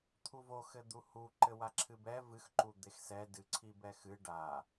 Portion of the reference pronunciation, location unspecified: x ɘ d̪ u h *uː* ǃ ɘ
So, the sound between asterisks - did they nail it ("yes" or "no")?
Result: no